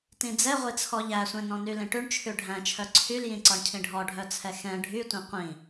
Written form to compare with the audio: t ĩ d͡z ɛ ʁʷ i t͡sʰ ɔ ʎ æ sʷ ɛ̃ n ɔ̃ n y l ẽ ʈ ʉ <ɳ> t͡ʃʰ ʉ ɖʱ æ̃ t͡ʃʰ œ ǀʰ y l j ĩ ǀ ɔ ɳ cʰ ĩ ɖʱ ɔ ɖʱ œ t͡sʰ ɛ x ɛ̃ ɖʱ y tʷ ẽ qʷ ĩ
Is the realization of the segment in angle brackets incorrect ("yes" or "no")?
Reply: no